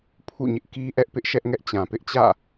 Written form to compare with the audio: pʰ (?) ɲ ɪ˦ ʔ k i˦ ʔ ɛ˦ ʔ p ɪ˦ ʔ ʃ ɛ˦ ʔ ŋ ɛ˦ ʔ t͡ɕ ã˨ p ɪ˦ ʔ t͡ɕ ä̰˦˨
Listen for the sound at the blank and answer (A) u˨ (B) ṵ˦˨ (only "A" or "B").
B